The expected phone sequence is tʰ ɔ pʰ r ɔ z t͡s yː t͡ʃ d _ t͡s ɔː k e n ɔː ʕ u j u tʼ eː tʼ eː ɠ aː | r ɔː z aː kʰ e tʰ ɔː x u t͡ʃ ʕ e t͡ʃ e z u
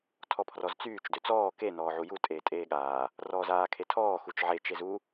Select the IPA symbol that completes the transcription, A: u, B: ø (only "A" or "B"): B